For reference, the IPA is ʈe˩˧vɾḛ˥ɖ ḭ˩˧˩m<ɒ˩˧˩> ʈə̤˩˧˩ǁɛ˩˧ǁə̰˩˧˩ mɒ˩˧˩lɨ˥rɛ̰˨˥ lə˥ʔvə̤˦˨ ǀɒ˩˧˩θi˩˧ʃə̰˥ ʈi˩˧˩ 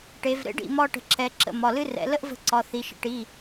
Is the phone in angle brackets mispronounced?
yes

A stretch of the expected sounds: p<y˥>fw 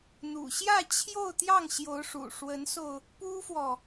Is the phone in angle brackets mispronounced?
yes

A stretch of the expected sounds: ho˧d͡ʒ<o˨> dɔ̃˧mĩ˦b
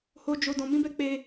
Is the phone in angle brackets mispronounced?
yes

